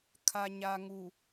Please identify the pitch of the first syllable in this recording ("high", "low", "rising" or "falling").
low